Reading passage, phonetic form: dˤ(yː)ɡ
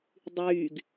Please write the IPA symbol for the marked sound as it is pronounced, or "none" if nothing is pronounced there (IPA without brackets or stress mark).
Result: yː